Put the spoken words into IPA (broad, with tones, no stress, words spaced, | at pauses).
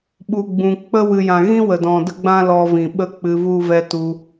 ɓu˨ɡ͡bũ˨ k͡pə˦ wɨ˨jã˨ɣĩ˦ wə˨dɔ̃˨ də˦ɡ͡bã˦ lɔ˧vĩ˨ ɓə˦k͡pɨ˧vu˦ vɛ˦tu˧